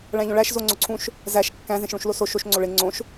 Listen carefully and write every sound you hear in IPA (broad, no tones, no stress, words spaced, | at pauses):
ɭæ̃ʎõɭæʃ zoŋ͡ǀoǀʰũʃ | zæʃ kːæ̃ zẽʃɭũʃloso ʃoʃ ŋ͡ǀoɭe ŋ͡ǀõʃ